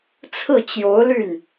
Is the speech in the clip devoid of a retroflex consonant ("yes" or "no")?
yes